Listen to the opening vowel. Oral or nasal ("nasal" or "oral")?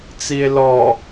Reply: oral